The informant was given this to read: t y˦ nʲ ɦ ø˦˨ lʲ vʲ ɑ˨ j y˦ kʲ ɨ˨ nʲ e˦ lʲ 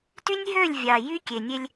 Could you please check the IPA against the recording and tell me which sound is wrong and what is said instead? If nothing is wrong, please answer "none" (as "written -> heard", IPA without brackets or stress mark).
ɨ˨ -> e˨